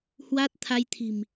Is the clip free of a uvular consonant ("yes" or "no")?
yes